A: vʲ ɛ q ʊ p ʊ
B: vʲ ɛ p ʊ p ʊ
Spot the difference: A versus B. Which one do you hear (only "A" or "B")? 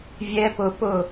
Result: B